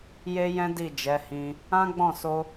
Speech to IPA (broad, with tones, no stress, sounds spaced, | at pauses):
j e˦ j ɛ̃˦ d i˦˨ d͡ʒ ɛ˨˦ h ĩ˧ | ã˦ ɡ͡b ɔ̃˦˨ s o˧